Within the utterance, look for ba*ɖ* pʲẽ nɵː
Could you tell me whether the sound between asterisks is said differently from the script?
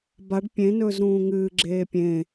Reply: no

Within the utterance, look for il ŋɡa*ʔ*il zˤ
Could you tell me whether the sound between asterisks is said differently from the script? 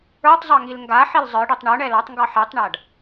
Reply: yes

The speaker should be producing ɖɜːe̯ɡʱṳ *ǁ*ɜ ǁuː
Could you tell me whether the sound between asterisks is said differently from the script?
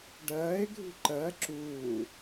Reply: yes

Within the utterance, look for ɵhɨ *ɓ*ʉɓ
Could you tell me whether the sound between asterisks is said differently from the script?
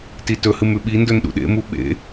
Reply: yes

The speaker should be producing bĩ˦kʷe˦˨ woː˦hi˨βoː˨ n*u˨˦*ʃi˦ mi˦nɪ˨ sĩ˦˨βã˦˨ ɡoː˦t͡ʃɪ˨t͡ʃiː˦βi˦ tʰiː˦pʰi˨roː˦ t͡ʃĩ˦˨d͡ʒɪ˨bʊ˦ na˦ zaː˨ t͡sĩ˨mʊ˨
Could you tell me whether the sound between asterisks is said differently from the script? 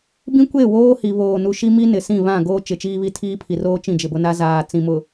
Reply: yes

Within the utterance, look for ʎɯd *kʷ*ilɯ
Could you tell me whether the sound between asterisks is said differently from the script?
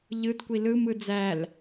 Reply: no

